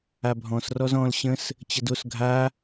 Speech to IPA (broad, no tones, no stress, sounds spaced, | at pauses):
a bʱ ɔ̃ s r ɔ z ɔ̃ l ɕ ə̃ s | t͡ɕ ə d o s ɡʱ a